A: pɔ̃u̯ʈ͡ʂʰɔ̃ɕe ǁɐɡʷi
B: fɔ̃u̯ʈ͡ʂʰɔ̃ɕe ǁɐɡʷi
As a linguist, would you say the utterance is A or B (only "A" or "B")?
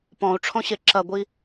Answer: A